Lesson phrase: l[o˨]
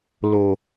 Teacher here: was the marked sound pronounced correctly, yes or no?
yes